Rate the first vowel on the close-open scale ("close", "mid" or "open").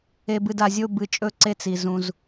mid